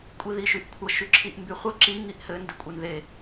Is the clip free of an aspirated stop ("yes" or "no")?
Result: no